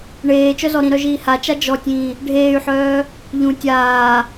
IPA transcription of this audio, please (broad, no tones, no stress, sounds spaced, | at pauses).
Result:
ɳ eː t͡ʃ œ z ɔ ɾ ĩ ɾ œ ʒ iː h a t͡ʃ a d͡ʒ ɔ tʲ ĩː | ɖʱ eː y̯ ħ œː | ʎ ũ tʲ aː